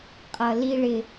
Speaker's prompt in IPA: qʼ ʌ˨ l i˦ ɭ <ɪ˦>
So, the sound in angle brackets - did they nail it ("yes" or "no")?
yes